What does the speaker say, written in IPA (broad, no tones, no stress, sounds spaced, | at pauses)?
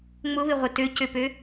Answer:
ŋ͡m ʊ β ɪ ʁʷ ɪ t ø c ø p ø